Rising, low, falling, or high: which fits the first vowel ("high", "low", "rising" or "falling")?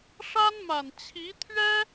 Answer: high